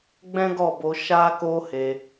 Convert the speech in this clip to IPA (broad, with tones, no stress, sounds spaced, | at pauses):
ɡ͡b ɛ̃˦ ɡ ɔ˦˨ b o˧ ʃ a˦ k o˦ h e˧